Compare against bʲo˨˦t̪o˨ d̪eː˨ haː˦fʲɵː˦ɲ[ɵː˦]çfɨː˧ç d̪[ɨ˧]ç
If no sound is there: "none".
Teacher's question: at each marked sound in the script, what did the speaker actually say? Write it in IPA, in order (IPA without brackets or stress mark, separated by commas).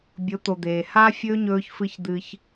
ɵː˧, ɨ˧